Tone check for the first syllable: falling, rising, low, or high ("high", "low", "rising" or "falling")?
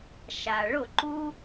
low